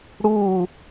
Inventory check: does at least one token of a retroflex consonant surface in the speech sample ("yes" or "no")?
yes